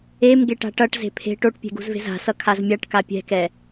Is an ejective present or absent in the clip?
absent